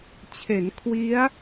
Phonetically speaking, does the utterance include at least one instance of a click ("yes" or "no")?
no